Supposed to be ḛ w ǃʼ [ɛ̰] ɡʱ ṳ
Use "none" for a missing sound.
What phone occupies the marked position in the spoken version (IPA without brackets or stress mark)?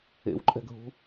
ɛ̤